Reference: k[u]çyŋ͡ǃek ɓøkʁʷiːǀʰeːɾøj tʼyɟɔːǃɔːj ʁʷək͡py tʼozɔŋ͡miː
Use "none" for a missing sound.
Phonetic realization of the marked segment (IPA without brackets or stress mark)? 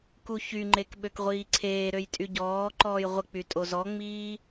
u